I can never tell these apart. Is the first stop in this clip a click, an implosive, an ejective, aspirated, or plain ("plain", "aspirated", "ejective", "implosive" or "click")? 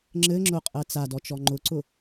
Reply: click